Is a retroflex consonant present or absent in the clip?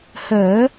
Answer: absent